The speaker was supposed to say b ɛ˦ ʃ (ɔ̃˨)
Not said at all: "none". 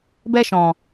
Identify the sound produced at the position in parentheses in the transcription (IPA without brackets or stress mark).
ɔ̃˨